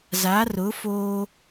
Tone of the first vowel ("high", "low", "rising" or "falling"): rising